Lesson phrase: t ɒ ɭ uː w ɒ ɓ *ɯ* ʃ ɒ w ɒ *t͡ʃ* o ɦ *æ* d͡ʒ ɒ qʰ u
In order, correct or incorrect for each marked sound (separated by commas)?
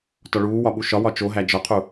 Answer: incorrect, correct, correct